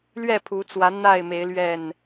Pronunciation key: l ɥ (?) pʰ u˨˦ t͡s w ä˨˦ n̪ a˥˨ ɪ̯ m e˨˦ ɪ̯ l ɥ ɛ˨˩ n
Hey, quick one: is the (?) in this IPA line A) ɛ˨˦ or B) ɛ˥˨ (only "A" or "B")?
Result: B